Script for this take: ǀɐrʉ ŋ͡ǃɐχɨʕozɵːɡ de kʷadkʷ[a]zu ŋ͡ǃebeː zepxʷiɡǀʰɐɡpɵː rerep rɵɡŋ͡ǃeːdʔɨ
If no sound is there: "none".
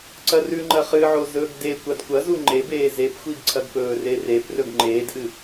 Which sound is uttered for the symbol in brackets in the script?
ɐ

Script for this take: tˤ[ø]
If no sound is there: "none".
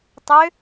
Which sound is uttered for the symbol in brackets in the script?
ø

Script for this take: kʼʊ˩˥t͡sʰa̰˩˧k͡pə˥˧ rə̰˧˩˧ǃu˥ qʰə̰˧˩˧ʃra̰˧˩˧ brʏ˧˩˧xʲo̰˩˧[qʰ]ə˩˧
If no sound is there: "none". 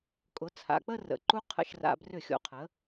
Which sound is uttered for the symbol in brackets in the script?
qʰ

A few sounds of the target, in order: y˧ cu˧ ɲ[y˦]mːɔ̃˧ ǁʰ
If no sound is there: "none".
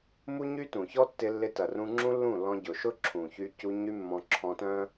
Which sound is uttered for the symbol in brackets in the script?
y˦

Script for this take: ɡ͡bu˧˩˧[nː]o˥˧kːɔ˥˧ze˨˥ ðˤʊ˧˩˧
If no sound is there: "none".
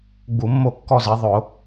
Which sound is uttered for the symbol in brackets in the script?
mː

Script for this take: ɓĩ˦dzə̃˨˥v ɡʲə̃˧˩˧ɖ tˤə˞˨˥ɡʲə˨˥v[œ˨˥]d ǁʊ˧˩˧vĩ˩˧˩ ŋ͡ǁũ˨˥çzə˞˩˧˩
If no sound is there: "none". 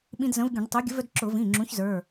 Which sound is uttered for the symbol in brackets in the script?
œ˦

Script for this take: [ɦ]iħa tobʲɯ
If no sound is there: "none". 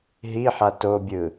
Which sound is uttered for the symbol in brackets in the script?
ɦ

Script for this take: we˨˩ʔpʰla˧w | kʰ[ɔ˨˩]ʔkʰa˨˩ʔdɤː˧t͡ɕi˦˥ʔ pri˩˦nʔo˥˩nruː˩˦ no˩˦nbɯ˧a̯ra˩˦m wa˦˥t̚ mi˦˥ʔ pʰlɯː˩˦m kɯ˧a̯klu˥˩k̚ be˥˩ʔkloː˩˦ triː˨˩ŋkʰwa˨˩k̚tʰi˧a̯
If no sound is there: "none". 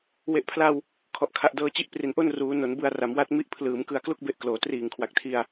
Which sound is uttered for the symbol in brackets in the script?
ɔ˨˩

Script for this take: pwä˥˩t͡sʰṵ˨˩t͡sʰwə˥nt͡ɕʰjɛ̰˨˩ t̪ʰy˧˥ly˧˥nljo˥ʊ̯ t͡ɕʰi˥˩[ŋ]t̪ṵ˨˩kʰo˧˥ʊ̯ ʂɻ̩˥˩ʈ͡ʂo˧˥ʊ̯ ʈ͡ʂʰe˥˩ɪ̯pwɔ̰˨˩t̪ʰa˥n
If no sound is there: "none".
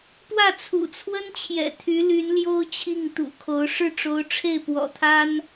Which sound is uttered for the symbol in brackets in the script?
ŋ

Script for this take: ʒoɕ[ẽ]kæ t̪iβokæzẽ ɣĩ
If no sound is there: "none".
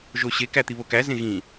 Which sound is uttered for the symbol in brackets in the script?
e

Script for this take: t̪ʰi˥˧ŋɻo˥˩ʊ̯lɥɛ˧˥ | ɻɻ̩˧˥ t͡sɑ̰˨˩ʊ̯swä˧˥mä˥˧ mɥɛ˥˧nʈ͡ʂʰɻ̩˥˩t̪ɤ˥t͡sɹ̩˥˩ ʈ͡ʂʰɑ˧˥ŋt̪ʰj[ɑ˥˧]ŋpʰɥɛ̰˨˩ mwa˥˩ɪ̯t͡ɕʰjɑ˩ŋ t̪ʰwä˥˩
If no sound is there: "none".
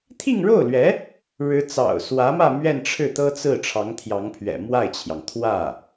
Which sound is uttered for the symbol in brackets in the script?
ɑ˧˥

